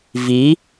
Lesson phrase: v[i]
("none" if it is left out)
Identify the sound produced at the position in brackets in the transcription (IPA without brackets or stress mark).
i